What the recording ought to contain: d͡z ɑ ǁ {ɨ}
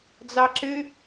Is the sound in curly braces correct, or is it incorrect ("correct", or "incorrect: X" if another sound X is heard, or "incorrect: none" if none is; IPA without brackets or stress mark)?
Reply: correct